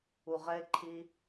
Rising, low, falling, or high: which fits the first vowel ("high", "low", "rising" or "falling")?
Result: low